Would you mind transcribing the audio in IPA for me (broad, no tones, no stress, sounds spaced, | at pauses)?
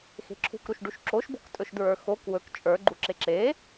x e̤ ǁʰ ṳ k ɾ u ʃ ɖ u ʃ ǁ o ʃ b o̤ k tʼ ɵ ʃ d ɹ ə˞ x o k w ɵ k t͡ʃʼ ə˞ ɡ͡ǃ u ǁ e ǁ e